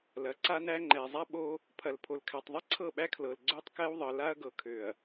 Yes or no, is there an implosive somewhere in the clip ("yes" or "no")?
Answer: yes